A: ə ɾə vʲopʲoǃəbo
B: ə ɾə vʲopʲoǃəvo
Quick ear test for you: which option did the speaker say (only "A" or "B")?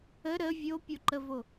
B